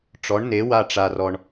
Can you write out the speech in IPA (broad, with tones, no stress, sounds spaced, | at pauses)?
ʈ͡ʂ ɔ˨˥ ɳ n e˨˥ w a˦˨ ʈ͡ʂ a˨ r ɔ˨ ɳ